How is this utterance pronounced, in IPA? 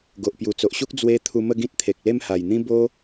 ɡ o˨ ʔ p j u˨˩ t͡s o˨ ʔ ɕ u˦ k̚ d͡z w e˧ t̪ʰ u˧ m ə˥˧ ɡ ĩ˦ t̚ t̪ʰ e˨ k̚ l e˥˧ m h a˨˩ j n̪ ĩ˦ b o˦

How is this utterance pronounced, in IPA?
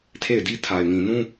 tʰ e˦˨ ɪ̯ d i˦ tʰ a˨ ɪ̯ ŋ ĩ˨ n ũ˦

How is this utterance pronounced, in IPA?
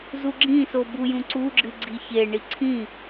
z u ɡ͡ǁ ĩ s o b u j ũ ǀ u ɡ͡ǁ ɨ ɡ͡ǀ i ç e ɳ i ǀʰ ĩ

